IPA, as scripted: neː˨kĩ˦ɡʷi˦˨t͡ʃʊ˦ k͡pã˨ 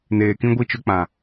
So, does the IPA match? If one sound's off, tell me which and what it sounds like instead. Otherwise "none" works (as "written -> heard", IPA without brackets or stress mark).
none